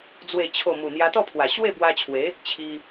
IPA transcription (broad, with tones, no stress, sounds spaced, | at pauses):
d͡z w e˨˩ t͡ɕʰ o˨˩ m u˨˩ n̪ j a˧ t̪ ɔ˥˧ pʰ w a˨˩ ɕ w e˥˧ b w a˧ t͡ɕʰ w e˨˦ | t͡ɕʰ i˧